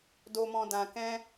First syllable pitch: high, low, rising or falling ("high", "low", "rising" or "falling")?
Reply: low